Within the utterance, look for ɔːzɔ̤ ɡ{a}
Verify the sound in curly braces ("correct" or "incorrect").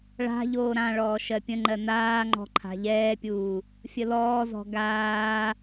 incorrect